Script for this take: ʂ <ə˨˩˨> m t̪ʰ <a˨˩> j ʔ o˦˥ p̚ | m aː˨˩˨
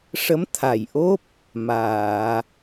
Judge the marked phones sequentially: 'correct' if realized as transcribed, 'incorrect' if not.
incorrect: ə˧˥, correct

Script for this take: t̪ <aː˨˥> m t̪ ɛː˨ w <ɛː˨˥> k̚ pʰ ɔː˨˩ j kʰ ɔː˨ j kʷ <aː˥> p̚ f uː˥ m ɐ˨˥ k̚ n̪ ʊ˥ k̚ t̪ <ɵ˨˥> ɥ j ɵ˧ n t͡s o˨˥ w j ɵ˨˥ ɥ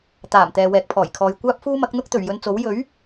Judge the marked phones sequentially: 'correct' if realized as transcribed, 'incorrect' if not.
incorrect: aː˨˩, incorrect: ɛː˨, correct, incorrect: ɵ˨˩

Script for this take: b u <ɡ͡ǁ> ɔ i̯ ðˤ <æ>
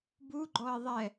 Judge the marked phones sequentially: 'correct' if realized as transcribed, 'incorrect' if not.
incorrect: ɡ͡ǃ, incorrect: ɛ

